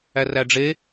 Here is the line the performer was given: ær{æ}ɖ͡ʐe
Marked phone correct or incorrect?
correct